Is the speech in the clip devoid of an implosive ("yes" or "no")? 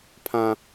yes